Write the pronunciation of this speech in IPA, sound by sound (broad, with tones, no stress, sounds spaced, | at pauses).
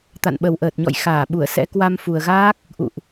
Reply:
t̪ a̰˧˨ n ɓ ə˨˩ w ʔ əː˨˩ t̚ ɲ ɔ̰˧˨ j x aː˧˩ ɓ u˧˩ ə̯ s ɛ̰˧˥ k w a˧ m f u˨˩ ə̯ ɣ aː˦˥ k̚ | ʔ ṵ˧˨ ʔ